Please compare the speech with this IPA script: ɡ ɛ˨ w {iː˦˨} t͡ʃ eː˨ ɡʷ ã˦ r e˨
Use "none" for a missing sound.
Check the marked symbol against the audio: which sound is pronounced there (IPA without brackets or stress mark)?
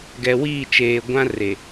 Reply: iː˦˨